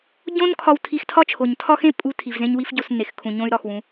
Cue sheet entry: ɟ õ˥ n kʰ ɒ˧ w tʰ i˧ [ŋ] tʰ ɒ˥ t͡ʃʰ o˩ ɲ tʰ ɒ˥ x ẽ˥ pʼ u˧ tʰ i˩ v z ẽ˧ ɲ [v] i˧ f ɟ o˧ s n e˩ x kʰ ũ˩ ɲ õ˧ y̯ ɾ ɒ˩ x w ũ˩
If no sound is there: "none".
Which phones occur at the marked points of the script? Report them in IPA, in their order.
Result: x, w

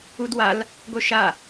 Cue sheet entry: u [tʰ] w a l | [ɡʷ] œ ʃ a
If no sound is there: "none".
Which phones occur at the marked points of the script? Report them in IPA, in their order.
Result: d, ɡʷ

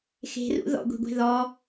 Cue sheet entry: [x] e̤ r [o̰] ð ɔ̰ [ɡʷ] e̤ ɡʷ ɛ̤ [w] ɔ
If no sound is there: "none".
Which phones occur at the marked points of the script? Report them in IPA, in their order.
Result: x, ṵ, ɡʷ, ð

